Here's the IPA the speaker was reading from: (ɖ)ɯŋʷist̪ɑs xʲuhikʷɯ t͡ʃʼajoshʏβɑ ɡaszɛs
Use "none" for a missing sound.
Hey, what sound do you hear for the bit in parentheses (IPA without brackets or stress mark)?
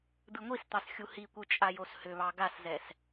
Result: d̪